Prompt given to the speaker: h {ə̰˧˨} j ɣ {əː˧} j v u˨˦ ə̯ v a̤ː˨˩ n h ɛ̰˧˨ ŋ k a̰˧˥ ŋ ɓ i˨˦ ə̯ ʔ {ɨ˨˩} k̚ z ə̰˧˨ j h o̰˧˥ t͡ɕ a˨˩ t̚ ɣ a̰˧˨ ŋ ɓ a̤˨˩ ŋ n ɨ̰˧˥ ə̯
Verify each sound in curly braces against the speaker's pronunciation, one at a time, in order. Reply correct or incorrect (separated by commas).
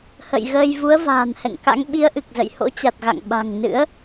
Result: correct, correct, correct